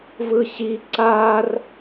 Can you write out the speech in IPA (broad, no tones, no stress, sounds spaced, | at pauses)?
v ɯ ɕ i ǀ a r